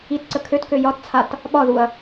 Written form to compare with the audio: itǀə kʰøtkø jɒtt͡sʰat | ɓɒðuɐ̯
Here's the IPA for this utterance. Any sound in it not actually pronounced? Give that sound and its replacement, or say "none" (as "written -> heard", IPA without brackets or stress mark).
none